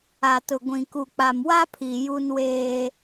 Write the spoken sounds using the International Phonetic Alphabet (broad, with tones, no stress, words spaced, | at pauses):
a˨tʊ˨ɡʷĩ˨ ku˨k͡pa˨mwa˦pʰi˨ ju˦nweː˦